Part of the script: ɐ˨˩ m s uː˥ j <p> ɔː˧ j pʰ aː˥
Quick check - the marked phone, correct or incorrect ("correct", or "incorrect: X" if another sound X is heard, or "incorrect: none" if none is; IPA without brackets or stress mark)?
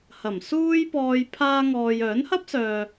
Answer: correct